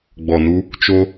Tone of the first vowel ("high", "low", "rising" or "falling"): low